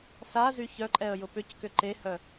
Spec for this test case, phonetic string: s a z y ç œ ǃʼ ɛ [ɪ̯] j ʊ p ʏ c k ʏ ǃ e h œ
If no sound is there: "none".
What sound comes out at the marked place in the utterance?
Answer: ə̯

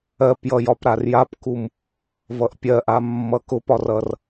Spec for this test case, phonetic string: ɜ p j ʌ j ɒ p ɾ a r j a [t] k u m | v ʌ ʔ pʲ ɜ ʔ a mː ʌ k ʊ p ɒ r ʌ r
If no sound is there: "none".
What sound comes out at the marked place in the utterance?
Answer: p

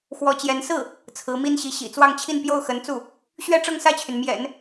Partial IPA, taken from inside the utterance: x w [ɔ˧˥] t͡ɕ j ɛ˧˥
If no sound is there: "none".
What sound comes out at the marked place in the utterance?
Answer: ɔ˧˥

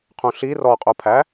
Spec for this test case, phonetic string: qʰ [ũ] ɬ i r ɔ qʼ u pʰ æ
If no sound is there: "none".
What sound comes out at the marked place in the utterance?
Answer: ũ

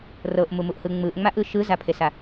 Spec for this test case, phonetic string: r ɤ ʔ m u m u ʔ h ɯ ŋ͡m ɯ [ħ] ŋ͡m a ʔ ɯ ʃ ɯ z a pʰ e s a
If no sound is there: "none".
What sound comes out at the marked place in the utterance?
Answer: ʔ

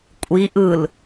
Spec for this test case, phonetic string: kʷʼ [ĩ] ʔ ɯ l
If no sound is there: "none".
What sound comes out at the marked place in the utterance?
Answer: i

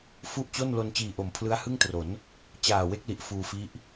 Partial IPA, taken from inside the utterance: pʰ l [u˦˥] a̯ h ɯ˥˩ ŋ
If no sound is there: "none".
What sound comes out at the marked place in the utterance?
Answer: ɯ˦˥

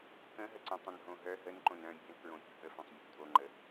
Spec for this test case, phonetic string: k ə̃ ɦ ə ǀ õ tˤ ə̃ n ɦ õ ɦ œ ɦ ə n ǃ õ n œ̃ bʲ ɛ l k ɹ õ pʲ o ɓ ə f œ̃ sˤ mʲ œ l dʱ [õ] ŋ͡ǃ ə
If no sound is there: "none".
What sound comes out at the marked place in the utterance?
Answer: o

